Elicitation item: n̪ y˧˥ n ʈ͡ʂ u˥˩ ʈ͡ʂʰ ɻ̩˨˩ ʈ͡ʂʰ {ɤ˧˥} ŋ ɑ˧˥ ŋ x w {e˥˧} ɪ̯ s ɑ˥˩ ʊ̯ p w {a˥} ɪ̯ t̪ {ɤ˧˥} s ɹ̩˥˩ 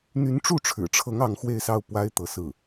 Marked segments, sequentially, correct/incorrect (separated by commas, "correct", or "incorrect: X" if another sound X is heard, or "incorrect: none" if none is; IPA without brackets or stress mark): correct, correct, correct, correct